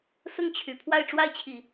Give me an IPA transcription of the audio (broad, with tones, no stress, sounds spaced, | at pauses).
s ʊ˥˩ ŋ t͡ɕʰ y˨˩ pʰ w a˥˧ ɪ̯ ʈ͡ʂ w a˥˩ ɪ̯ t͡ɕʰ i˨˩˦